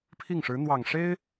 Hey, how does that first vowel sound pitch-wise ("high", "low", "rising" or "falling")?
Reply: falling